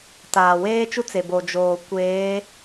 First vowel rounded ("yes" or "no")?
no